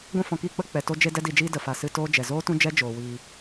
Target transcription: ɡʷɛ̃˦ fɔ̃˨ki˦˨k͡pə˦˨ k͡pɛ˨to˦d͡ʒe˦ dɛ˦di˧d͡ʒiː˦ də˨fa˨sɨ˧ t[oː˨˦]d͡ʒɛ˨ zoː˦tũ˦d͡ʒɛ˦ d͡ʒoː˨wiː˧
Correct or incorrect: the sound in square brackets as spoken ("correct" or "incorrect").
incorrect